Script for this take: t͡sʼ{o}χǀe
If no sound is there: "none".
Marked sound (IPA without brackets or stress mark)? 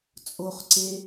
o